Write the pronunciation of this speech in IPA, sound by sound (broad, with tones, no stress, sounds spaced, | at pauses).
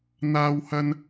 n̪ aː˥ w h ɐ˥ n